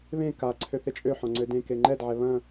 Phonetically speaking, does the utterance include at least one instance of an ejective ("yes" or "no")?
yes